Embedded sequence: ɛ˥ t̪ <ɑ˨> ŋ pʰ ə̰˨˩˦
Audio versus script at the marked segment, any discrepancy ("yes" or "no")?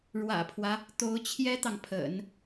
no